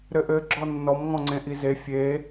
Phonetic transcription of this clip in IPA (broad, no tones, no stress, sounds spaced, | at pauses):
ɾ ɘ ʔ ɘ ɡ͡ǁ ɔ nː ɔ m ŋ ɔ̃ ŋ͡ǀ ẽ ʔ i z e fʲ e